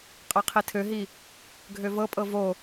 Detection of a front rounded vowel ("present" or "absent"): present